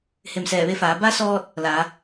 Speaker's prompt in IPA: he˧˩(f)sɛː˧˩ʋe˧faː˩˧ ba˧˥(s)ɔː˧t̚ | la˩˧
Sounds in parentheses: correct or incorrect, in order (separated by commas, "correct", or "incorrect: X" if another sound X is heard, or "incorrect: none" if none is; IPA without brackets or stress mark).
incorrect: m, correct